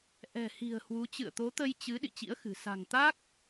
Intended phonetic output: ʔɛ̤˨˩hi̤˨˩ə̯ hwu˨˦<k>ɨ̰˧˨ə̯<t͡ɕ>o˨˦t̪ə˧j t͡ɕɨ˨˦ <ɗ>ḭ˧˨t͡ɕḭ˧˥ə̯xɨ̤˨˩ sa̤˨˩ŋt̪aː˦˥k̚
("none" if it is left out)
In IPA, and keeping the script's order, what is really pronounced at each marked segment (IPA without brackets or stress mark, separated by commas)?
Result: t͡ɕ, t̪, ɗ